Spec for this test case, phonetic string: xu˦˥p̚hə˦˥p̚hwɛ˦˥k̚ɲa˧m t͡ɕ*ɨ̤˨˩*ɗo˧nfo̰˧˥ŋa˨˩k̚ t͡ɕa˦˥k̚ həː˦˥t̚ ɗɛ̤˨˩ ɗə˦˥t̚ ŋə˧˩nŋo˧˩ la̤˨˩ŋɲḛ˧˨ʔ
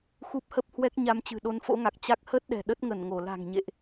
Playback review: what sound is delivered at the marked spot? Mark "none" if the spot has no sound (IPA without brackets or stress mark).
ɨ̤˨˩